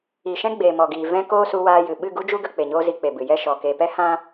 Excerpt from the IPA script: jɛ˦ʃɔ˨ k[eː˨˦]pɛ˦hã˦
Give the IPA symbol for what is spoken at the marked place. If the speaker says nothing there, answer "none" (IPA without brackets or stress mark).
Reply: eː˨